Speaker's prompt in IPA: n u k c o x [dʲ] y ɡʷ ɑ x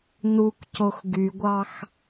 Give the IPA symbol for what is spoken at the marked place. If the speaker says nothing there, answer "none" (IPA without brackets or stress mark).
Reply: ɡ